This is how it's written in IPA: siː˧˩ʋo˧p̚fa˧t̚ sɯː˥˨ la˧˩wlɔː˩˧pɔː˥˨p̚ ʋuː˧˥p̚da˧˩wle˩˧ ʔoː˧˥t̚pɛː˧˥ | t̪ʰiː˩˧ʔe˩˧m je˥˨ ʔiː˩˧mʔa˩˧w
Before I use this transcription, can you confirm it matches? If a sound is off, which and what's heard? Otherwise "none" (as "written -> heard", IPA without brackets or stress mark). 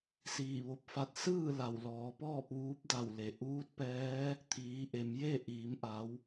oː˧˥ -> uː˧˥